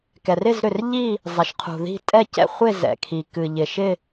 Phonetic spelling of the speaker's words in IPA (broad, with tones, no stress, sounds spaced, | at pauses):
k ɛ˩ r ɪ˦˨ z ɾ ʏ˩ r ʎ i˦˨ | zˤ ɪ˩ ʃ qʰ ṳ˩ ð i̤˦˨ tʼ ɛ˦˨ c ɛ̰˦˨ χʷ ɪ˦˨ z ɛ̰˩ kʰ i˩ k ɨ˩ ʎ ɪ˩ ʃ ɪ˦˨